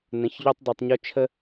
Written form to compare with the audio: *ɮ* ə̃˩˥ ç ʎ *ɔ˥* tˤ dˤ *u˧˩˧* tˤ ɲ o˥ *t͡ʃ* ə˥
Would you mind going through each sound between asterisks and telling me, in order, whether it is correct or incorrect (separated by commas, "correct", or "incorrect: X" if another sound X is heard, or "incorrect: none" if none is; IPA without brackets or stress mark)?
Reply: incorrect: n, incorrect: o˥, correct, incorrect: t͡ʃʰ